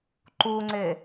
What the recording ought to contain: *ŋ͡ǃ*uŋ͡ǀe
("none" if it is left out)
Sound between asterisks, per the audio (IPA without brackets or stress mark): ǃ